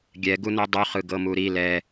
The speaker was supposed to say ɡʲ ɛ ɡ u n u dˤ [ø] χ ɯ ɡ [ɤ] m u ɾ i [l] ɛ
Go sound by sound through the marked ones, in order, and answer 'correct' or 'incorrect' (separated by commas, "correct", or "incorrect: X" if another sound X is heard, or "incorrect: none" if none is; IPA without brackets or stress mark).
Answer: incorrect: u, correct, correct